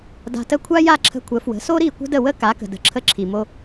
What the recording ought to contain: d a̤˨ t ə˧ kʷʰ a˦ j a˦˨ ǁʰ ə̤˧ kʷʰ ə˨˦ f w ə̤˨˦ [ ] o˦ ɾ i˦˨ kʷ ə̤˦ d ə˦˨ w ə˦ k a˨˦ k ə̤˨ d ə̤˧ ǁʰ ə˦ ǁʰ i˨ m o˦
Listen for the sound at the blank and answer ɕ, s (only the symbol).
s